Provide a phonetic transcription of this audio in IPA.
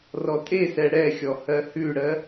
r ɔ tʼ e s ɛ ɽ ɛ xʲ ɔ h ɜ h ʉ ɽ ɜ

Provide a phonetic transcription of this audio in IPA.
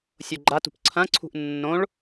sʲ o ɡ͡ǃ a t ṳ p ǀʰ ɐ̃ ǀʰ ṳ ʔ nː õ ɭ

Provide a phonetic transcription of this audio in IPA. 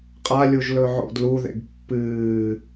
qʼ a lʲ u ʒ l ɵ ʕ o̰ d l u ð ḛ ɡ pː ɨː

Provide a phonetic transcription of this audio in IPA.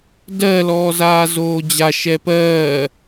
d ɜ l ɔː z aː z oː d͡ʑ a ʃ ɛ p ɜː

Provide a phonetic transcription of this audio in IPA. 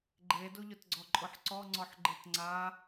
ɡ͡ǃ e d o ʎ ʊ t ɡ͡ǀ ɔ ǃʼ ʊ ħ ǀ ɔ ŋ͡ǀ ɔ ħ ɡ͡ǃ ɪ t ŋ͡ǀ a

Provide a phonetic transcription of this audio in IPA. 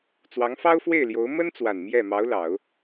t͡s w ɑ˧˥ ŋ f ɑ˥ ʊ̯ f w e˥˩ ɪ̯ l j o˧˥ ʊ̯ m ə˥ n t͡s w a˨˩ n m j ɛ˥˩ m ɑ˧˥ ʊ̯ l ɑ˨˩˦ ʊ̯

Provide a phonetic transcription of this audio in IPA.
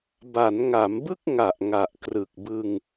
b a˩˦ n ŋ a˩˦ m b ɯ˥˩ k̚ ŋ a˨˩ ʔ ŋ a˨˩ ʔ k r ɯ˨˩ k̚ b ɯ˧ ŋ

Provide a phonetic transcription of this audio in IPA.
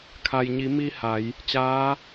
kʰ a˩ j ɲ i˩˧ m i˧ h a˩˧ j | t͡ɕ aː˧˥

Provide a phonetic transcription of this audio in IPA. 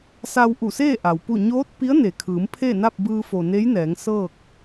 s a˧ w ʔ u˧˩ s eː˥˨ ʔ a˩ w p u˥˨ ɲ oː˧˥ t̚ p i˧˥ ə̯ n e˩ kʰ ɯː˩˧ m pʰ e˥˨ n a˥˨ p̚ b ɯː˧ f o˩ n e˧˥ j n ɛː˩˧ ŋ s ɤː˥˨ k̚

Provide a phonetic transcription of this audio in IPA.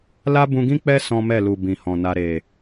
l a˦ b ũ˧ ɡ ĩ˦ k͡p ɛ˦ s ɔ̃˦ m ɛ˦˨ l u˨ b ĩ˨ h ɔ̃˨ n a˧ ɾ e˨

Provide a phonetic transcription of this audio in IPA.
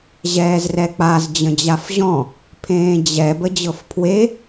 ʑ ɛː z r ɛ k͡p a z d͡ʑ ə̃ d͡ʑ a f ʑ ɔ̃ | pʰ ẽː d͡ʑ ɛ b ə d͡ʑ ɤ f pʰ w e

